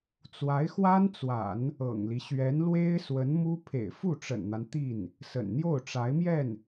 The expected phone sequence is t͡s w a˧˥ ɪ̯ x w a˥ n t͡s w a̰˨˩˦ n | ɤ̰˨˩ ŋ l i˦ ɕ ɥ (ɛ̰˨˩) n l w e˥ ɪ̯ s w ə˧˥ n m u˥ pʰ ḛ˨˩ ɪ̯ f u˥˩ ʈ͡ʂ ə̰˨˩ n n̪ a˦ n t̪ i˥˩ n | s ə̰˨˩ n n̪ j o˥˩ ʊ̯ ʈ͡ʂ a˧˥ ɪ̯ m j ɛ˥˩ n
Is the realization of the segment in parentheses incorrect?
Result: yes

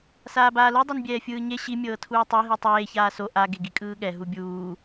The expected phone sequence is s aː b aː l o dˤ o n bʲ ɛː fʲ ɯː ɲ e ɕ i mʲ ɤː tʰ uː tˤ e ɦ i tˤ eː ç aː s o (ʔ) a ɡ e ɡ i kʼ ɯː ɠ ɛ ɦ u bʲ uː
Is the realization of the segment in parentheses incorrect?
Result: no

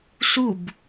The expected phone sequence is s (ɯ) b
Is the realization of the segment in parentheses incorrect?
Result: yes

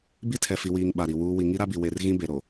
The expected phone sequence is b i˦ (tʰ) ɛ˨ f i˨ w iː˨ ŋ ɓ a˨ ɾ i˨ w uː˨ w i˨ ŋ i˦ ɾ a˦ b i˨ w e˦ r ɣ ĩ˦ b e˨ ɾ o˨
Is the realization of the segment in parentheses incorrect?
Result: no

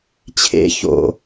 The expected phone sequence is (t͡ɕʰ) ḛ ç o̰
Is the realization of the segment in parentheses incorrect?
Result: no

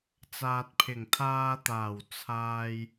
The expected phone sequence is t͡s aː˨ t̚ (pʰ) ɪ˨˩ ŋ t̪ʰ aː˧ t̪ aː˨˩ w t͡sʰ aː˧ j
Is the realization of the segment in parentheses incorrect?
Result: no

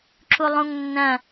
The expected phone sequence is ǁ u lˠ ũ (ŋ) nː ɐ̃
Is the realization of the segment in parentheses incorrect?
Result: no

